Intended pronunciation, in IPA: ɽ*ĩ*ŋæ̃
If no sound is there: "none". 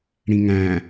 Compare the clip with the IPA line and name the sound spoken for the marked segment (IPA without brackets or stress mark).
ĩ